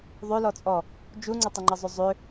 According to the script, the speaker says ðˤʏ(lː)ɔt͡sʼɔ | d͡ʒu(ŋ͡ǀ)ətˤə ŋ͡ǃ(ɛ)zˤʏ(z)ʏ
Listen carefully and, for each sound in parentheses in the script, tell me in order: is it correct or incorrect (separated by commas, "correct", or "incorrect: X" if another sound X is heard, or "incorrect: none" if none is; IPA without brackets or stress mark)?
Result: incorrect: l, correct, incorrect: ə, incorrect: zˤ